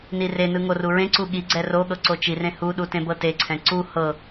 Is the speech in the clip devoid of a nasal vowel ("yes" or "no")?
no